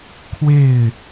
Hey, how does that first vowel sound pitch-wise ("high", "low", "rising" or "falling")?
falling